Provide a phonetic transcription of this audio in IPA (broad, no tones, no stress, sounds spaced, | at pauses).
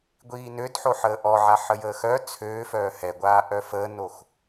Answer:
ɡʷ iː n ø d ħ o ħ əː ʔ ɔ ʕ a ħ ə j əː x œ t͡sʰ øː f œː h ɛ ɡʷ aː ʔ œ f əː n o x